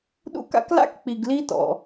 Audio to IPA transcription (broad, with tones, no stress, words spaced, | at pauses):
ɗṵ˦ka̰˥kla̰˥k k͡pi˨ɡli˦ tɔ̰˩